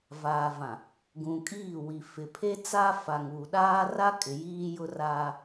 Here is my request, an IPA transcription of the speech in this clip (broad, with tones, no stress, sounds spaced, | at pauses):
v aː˨ v ã˨ | ɡ ũ˨ kʼ iː˦˨ w i˨ f ɪ˨ pʰ e˦ t͡s a˦ f a˨ ŋ uː˨ ɗ aː˦ r a˦ kʼ ɪ˨ j iː˦ j ʊ˦ r aː˦